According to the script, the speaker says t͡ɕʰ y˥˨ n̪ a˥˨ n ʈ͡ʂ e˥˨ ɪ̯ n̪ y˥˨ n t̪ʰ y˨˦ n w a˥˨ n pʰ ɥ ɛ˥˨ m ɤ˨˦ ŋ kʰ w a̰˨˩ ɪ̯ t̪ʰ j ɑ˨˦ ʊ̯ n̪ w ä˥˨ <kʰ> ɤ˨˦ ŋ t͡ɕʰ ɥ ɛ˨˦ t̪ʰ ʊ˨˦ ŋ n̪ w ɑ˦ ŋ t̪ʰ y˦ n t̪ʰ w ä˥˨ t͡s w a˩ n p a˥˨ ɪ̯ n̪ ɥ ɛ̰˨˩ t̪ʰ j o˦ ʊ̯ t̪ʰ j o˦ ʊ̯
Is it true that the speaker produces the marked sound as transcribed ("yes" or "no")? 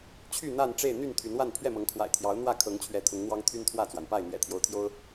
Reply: yes